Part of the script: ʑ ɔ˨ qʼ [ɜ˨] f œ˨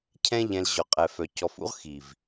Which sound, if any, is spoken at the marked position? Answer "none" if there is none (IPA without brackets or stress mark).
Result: ɛ˨